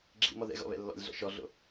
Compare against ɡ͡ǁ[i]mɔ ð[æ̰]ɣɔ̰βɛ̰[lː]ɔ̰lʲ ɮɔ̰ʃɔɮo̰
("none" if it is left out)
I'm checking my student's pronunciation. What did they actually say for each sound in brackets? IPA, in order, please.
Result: ḭ, ɛ̰, lː

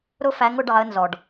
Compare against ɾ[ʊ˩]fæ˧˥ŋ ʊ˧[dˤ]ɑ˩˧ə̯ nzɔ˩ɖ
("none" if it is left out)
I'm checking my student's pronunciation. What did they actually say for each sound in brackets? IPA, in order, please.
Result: ʊ˥, ɖ

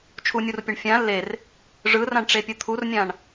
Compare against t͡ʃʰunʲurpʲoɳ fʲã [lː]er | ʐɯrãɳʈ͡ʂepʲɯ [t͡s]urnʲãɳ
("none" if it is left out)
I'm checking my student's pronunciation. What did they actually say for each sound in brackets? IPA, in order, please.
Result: lː, t̪ʰ

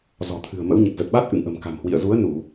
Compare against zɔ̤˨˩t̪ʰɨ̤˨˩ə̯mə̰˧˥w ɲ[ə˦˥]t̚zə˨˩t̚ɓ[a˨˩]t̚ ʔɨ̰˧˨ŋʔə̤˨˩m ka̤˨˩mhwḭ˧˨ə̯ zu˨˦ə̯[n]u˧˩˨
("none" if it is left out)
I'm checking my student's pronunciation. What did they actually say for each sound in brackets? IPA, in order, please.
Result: ə˨˩, a˦˥, n

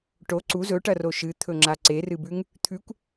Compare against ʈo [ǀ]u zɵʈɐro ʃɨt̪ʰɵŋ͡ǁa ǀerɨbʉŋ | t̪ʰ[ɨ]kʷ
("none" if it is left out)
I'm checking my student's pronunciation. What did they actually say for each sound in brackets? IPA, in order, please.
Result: ǀ, ʉ

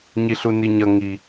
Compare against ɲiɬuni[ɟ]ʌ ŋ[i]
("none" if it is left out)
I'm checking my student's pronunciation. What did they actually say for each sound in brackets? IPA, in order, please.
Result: ɲ, i

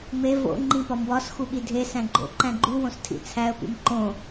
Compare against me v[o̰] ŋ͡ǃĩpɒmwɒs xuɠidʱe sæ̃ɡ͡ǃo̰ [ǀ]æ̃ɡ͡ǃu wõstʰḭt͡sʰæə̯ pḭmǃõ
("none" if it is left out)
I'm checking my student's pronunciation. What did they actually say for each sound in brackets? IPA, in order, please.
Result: o̰, ǃ

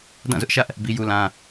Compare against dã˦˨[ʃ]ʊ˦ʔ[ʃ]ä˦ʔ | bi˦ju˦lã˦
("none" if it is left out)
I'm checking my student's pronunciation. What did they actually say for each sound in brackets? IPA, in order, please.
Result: z, ʃ

